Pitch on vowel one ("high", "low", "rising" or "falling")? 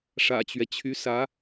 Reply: low